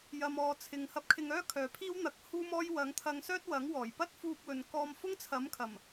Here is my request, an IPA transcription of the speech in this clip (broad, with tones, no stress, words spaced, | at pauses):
jɐ˨mɔː˨t͡sʰɪ˨ŋhɐ˧p̚ kʰɪ˧ŋœː˥kʰœː˨pʰiː˥w n̪ɐ˧k̚huː˥mɔː˥j wɐ˨˥ŋt̪ʰɐ˧ŋsœː˥t̚ wɐ˨˥ŋwɔː˨˩j pɐ˥t̚fuː˧p̚wɵ˨n kɔː˧mfʊ˥ŋt͡sʰɐ˨˥mkʰɐ˨˩m